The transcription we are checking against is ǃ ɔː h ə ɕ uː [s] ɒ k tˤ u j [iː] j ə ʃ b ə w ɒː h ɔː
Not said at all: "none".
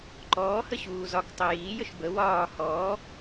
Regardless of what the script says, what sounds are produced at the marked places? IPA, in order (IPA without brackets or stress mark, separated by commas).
z, iː